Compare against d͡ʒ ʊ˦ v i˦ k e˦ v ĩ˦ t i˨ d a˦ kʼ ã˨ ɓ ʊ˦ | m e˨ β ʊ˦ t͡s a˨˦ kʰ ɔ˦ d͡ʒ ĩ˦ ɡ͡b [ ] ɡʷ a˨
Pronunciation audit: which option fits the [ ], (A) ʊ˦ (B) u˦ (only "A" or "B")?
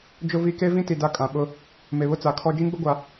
A